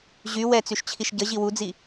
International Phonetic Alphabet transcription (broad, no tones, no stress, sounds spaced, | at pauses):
ʑ y w ɛ t͡s y ʃ t͡ɕʰ i ʃ ɟ ə ʑ i w u d͡z i